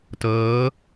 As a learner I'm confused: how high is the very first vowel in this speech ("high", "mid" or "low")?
mid